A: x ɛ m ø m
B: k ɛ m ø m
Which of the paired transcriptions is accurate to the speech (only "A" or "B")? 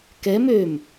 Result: B